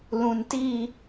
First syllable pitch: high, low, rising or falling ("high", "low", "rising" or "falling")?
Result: low